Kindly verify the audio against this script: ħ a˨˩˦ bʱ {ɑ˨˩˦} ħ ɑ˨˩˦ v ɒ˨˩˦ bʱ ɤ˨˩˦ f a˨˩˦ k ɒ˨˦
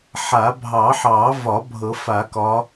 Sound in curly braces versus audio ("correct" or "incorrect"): correct